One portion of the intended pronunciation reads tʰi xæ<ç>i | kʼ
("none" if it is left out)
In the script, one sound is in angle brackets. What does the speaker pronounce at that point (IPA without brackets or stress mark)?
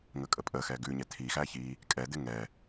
ç